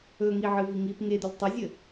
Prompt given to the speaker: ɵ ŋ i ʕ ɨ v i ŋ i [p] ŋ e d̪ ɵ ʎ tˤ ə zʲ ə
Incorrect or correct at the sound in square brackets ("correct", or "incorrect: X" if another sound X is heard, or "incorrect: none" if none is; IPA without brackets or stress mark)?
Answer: correct